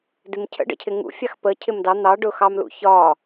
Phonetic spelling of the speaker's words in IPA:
d ɪ m cʰ ə̰ ɖ ə̰ cʰ ɪ ŋ ṵ fʲ ɑ x p ə cʰ ɪ m d ɑ n̪ ɑ ɖ ʊ x ɑ m l ṵ ç ɒ

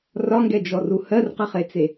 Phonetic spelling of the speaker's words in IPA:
r ɒ ŋ ɡ ɛ d͡ʒ ɔ r u h ɜ r q ə χ e t͡s e

